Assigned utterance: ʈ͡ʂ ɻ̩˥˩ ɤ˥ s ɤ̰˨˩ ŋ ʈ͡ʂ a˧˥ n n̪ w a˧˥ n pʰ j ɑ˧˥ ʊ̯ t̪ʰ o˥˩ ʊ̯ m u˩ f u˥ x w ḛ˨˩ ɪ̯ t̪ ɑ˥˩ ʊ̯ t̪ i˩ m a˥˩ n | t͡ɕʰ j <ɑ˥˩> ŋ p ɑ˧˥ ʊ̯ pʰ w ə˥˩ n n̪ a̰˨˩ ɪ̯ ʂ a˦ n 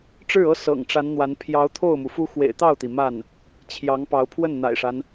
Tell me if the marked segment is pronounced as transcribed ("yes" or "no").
no